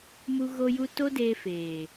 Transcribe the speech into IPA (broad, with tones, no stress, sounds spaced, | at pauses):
m u˦ ɣ o˦ j u˦ t o˦ d eː˧ f eː˨